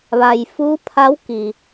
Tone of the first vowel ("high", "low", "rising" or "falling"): low